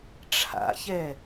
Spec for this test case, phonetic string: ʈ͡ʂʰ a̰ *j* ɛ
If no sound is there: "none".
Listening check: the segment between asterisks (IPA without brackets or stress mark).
ç